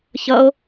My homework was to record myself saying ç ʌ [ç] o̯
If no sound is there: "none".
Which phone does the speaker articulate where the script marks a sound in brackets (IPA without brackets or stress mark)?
none